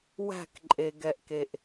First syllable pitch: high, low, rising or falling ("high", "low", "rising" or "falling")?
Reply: falling